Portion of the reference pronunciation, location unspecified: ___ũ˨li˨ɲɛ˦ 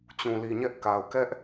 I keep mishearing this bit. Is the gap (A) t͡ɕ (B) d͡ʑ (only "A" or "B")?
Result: A